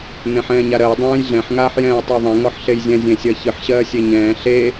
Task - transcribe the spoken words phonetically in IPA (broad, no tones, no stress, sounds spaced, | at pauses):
n̪ ẽ ħ ɛ̃ː ɲ a ɾ ɜ j dˤ ɛ̃ː j ɮ ɛ̃ ħ ŋ aː ħ j ɛ̃ː j tˤ ɜ ðˤ ẽ ŋ ɔ ħ ɬ e j zʲ ɛ̃ zʲ ẽ sʲ ɜ ç ɨ ħ ɕ ɜː sʲ e ɲ ɛ̃ː ɬ e